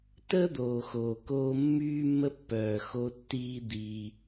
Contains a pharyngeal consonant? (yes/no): no